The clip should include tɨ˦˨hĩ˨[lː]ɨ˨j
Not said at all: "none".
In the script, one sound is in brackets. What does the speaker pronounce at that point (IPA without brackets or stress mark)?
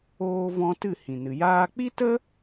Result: n